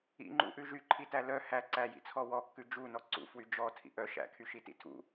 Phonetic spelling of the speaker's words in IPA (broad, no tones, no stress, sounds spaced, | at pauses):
ḭ ŋ͡ǃ ṵ ʔ ʉ ʒ y ǃʰ i t æ l œ h æ ǀ æ j ḭ t͡sʰ ɔ w ɔ kː ʉ d͡ʒ u n ɔ ǀ ṵ f w y d͡ʒ ɔ tʰ ḭ ʔ œ ʃ æ̰ kʰ y ʃ i t ḭ tʰ ṵ